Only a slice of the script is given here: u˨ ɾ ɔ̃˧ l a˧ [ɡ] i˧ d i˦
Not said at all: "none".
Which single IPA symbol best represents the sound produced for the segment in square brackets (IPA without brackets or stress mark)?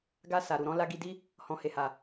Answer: ɡ